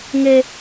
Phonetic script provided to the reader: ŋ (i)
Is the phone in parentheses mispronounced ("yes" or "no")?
yes